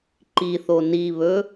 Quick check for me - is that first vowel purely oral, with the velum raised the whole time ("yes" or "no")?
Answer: yes